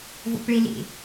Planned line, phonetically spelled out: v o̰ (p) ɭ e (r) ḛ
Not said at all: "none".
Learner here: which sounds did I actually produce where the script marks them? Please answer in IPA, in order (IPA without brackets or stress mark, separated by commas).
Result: p, l